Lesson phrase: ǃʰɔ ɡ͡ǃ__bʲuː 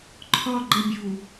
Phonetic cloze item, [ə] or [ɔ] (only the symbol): ə